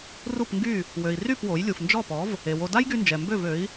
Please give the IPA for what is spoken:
r u˥˩ p ŋ ɡ y˥˩ | w ø˩ i̯ r y˥˩ p w o˩˥ j lʲ u˩ f n d͡ʒ ɔ˥˩ p ɔ˩˥ v | e˩ w o˧ d a˥ j ɡ y˧ n d͡ʒ ɛ˩ m b ø˥˩ v ø˩˥ i̯

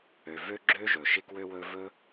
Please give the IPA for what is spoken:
ø˨ v ø˦ ɡ͡ǁ ø˦ ʒ ɵ˨ ʃ ɪ˦ k w ø˦ w ɵ˦ v ɵ˦

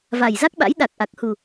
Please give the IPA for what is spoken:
v a˨˩ j z a˦˥ k̚ ɓ a̰˧˥ j ɗ a˨˩ k̚ ʔ a˨˩ k̚ h u˨˩

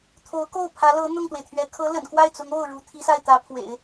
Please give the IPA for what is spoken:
t̪ʰ o˧˥ ʊ̯ k o˥˩ ʊ̯ pʰ ä˧˥ l ɤ˧˥ n̪ ʊ˥˩ ŋ t̪ w e˩ ɪ̯ t̪ʰ ɥ ɛ˧˥ kʰ ɤ˧˥ l ə̰˨˩ n k w a˥˩ ɪ̯ t͡s ʊ˧˥ ŋ o˥˩ ʊ̯ ɻ u˧˥ t̪ʰ i˧˥ s a˥˩ ɪ̯ t̪ ä˧˥ pʰ w ḛ˨˩˦ ɪ̯

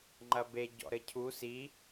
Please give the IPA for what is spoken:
ŋ͡ǃ ɐ b e ɟ ɔ̰ ɾ ɘ cʰ u s i

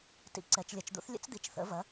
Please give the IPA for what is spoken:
t ḭ˩˥ ǀ ɛ˩˧ t͡ʃ lʲ ɐ˩˧ t͡ʃ d̪ ṵ˩˥ θ lʲ ə̰˦˥ t͡s d̪ i˩˧ t͡ʃ θ ə̰˩˥ v ɐ˩˥

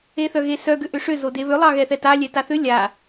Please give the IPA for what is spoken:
e θ œ ɣ e s œ ɡ ʏ ʔ ʏ ʂ ʏ z o d e β ʏ lˠ ɑ ɣ ɛ θ ɛ t a lʲ ɛ t a θ ʏ lʲ a

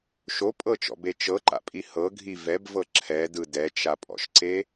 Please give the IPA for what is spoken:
ʃ o pʼ ɤ t͡ʃ ɔ̰ b e t͡ʃ ɤ ǃ a̰ pʼ i h ɤ ɡʱ i v ɛ b v ɤ ǁʰ ɛ d ɯ d ɛ t͡ʃ a pʼ ɔ̰ ʃ ǀ e

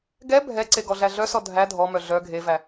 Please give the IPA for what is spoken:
ɡ ɛ bʱ ɛ ǀ e ɡ ɔ ɮ æ ɮ œ s ɔ dʱ æ dʱ ɔ m œ ɮ œ ɡʱ e v æ

